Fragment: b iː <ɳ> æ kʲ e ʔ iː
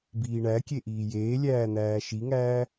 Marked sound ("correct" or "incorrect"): correct